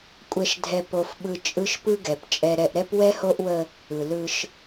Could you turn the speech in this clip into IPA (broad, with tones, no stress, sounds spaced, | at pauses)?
kʷʼ ɛ˨ ʃ dʱ ɛ˨ p o˨ f ɓ ɯ˨ t͡ʃʼ ɯ˦ ʃ p ɯ˦ ɡ ɛ˨ p t͡ʃʼ ɛ˦ ɾ ɛ˦ ʔ ɾ ɛ˦ p w ɛ˦ h o˦ ʔ w ə˦ | ɯ˨ l ɯ˦ ʃ